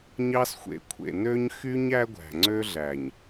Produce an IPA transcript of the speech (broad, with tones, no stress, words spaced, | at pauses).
ɲɑ˦sxʷḛ˨kʷʰḛ˨ nø˦ɲxy˦ɲ æ˦ɡʷæ̤˨ŋ͡ǀø˦ɮæ˨ɲ